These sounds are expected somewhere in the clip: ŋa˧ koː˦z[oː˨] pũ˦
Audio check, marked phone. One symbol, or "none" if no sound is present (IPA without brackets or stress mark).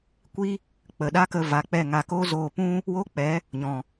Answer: oː˧